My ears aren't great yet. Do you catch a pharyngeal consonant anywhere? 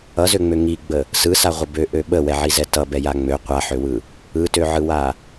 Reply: yes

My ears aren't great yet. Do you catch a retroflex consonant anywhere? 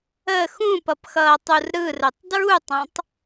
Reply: no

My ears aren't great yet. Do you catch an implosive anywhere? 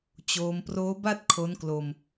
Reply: no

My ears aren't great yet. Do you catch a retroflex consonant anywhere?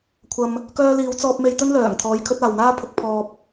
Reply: no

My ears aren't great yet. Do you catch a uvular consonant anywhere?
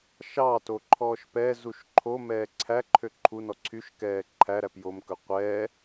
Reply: yes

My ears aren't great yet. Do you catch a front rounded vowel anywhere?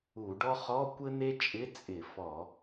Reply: no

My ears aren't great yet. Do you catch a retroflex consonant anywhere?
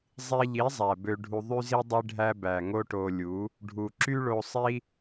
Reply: yes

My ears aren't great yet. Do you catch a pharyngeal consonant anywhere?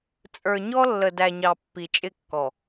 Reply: no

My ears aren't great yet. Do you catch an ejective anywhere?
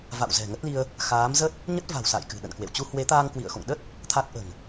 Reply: no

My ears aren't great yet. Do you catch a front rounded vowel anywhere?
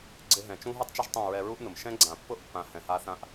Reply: no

